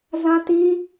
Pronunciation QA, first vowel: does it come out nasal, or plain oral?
nasal